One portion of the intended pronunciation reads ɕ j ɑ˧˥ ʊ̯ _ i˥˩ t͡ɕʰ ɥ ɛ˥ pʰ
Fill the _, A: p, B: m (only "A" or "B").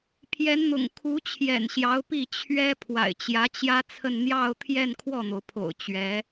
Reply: A